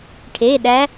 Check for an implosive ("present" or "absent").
present